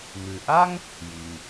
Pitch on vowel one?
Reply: low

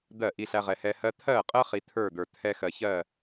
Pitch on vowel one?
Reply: falling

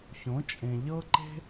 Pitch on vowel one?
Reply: rising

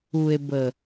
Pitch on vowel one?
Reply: low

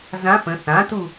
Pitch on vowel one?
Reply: rising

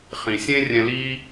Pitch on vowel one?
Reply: low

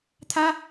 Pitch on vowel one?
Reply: high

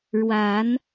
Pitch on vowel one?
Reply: rising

